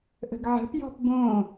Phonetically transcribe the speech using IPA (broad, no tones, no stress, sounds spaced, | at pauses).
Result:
ʔ ə̤ ɡ ʕ ə̤ p j ɔ̤ p b õ